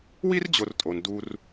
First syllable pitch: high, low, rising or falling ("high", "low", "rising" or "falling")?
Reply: high